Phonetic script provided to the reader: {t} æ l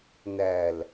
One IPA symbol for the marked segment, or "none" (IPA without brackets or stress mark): n